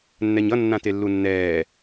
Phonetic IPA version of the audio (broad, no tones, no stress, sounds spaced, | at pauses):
nː ɛ ɲ ʌ nː ã t e lː u nː ɛː